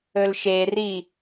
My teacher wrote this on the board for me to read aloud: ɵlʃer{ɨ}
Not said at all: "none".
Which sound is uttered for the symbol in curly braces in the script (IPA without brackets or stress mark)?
i